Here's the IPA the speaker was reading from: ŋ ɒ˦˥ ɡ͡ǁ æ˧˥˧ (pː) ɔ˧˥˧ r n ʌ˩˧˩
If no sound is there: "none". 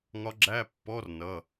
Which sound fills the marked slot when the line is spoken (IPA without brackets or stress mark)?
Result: pː